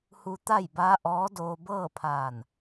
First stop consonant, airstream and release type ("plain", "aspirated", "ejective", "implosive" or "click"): plain